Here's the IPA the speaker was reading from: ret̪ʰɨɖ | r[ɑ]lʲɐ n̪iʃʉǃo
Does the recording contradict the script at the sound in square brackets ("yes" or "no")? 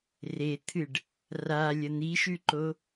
yes